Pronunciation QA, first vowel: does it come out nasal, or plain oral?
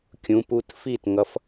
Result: nasal